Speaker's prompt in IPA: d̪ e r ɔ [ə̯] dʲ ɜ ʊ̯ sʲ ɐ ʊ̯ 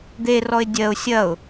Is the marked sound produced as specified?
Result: no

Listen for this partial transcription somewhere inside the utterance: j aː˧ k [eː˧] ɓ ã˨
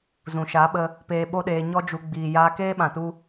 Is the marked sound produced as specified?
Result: no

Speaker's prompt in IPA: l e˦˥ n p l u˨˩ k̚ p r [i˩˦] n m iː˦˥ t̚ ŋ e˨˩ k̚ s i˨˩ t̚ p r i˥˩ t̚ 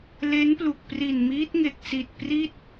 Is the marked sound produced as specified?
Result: no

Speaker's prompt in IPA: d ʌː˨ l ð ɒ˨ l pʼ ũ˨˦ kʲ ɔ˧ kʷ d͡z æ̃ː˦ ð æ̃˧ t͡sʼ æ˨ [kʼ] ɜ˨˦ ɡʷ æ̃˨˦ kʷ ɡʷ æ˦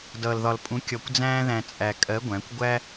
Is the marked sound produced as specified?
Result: yes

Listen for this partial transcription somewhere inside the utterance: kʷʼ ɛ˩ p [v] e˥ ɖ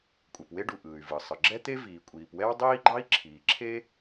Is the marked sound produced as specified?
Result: no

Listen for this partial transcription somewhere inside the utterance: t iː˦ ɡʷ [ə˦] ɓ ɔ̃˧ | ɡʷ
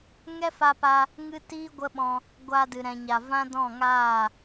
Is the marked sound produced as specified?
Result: yes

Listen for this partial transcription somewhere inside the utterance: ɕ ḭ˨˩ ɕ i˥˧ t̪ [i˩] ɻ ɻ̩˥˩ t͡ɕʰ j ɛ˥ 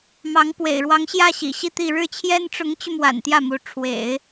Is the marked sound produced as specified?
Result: no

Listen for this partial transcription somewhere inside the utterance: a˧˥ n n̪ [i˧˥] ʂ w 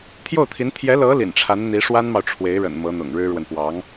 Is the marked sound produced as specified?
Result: yes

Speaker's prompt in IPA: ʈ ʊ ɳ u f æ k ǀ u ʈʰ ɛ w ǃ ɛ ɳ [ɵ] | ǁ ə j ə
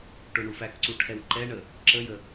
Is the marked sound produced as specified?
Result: no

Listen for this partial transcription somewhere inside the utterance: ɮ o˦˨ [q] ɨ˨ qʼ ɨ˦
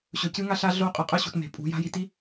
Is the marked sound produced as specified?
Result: no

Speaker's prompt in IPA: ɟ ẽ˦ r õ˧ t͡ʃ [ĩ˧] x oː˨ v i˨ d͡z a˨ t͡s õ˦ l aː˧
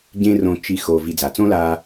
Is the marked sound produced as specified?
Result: no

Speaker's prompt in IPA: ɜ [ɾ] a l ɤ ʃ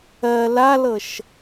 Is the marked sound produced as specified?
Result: no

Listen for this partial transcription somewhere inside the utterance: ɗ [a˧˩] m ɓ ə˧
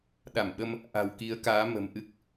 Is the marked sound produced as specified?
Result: yes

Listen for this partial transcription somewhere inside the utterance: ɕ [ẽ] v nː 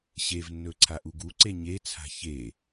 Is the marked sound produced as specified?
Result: no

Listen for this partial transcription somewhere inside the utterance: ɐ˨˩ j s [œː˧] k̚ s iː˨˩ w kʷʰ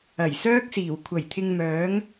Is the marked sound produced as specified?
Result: no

